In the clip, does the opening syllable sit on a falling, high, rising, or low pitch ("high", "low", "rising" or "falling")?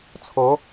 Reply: rising